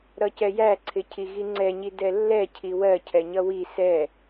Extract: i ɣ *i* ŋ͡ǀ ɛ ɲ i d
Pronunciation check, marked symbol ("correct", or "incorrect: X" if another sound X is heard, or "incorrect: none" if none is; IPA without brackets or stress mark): correct